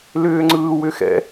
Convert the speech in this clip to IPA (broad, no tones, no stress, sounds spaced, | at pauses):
l ʏː ŋ͡ǀ ɯː w ʏ x ɛ̰